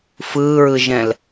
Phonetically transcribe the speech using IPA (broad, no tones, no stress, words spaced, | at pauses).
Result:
fɯːɹɯʒɛ̃l